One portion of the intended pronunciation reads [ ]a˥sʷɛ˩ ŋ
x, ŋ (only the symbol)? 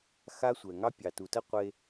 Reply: x